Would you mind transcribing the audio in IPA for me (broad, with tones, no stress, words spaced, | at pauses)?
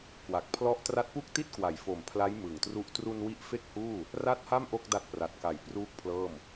kwa˨˩k̚pʰlɔ˦˥ʔ tra˦˥t̚pu˥˩k̚ti˥˩t̚kwa˩˦j fo˨˩m pʰla˦˥j mɯ˨˩ŋtru˦˥ʔ tru˧n wi˦˥ʔfe˥˩k̚huː˥˩ | ra˥˩t̚ha˥˩m ʔo˥˩k̚da˦˥t̚pra˨˩t̚ka˨˩j pruː˥˩k̚pʰlɤː˥˩m